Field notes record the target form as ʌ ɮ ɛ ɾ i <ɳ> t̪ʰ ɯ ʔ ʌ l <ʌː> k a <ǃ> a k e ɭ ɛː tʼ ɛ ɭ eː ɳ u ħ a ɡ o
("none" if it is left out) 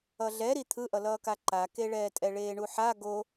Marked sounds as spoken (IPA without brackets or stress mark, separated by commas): none, ʌː, ǃ